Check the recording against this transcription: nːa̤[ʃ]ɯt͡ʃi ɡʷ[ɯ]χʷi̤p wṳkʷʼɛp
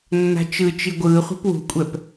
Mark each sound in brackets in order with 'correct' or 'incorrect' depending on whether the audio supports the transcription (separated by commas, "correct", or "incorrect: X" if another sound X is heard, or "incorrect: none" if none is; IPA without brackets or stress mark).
incorrect: t͡ʃ, incorrect: ɯː